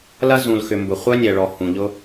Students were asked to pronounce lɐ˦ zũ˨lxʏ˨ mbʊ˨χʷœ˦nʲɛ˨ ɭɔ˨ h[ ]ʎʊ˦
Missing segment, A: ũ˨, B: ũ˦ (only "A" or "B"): A